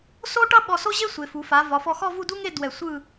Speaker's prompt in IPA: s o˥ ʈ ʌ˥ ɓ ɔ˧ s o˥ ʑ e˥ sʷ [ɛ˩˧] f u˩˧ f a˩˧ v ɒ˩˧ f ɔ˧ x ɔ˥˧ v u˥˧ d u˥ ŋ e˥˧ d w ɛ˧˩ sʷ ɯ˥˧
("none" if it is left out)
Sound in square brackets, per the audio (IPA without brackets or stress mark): e˩˧